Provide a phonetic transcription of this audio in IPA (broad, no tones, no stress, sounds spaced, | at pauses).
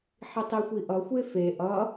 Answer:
ħ i tˤ i xʷ i ʔ ʌ xʷ e f e ʔ ʌ